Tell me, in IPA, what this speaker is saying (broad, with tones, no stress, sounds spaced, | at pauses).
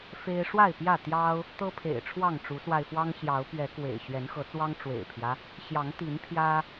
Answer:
f e˦ ɪ̯ ʂ w a˥˨ ɪ̯ p j ä˥˨ t̪ j ɑ˦ ʊ̯ | t̪ ɤ˦ pʰ ḛ˨˩ ɪ̯ ʈ͡ʂʰ w ɑ˥˨ ŋ ʈ͡ʂ u˨˦ s w a˧ ɪ̯ f w ɑ˦ ŋ ɕ j ɑ˨˦ ʊ̯ p ɥ ɛ˨˦ k w ḛ˨˩ ɪ̯ ɕ ɥ ɛ˨˦ n x ɤ˨˦ t͡s w ɑ˦ ŋ ʈ͡ʂ w ḛ˨˩ ɪ̯ pʰ j ä˦ | ɕ j ɑ˨˦ ŋ t̪ i˨˦ n pʰ j ä˦